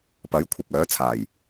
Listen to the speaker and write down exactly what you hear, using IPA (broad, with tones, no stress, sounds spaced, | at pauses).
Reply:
p ɐ˨˥ j kʷʰ ɪ˨ k̚ œː˨˥ t͡sʰ aː˨˩ j